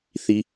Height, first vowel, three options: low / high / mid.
high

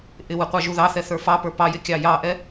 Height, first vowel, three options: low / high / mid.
high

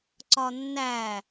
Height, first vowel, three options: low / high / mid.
low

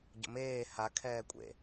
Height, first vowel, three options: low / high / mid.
mid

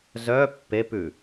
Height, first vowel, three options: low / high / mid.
mid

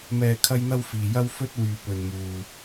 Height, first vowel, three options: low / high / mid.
mid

